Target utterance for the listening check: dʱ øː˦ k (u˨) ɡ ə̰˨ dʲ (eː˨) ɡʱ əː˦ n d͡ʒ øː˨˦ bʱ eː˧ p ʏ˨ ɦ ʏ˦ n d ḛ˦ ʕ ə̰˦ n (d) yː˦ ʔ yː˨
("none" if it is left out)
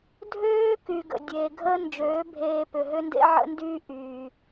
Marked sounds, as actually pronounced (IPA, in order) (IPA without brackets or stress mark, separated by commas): y˨, eː˨, d